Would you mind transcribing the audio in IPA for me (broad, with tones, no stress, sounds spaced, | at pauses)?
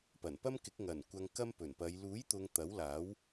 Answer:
p ɐ˨˩ n p ɐ˥ m k ɪ˨˥ k̚ ŋ ɐ˨˩ n kʷ ɐ˧ ŋ k ɐ˥ m p ɵ˨˩ n p ɐ˨˧ j l uː˨˥ j t̪ ʊ˨ ŋ t̪ ɐ˨˥ w l aː˨˥ w